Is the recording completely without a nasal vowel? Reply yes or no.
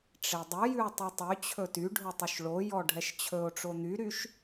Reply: yes